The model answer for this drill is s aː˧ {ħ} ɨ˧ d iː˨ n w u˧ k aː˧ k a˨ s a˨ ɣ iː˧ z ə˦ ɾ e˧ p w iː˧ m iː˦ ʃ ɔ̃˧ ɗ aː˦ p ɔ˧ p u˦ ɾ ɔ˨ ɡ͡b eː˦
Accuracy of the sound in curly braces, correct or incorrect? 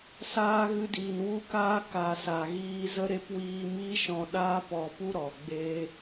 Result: incorrect